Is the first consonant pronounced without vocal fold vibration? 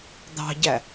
no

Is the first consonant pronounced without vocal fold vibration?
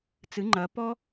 yes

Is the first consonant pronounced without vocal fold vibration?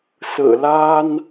yes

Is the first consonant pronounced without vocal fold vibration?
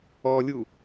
no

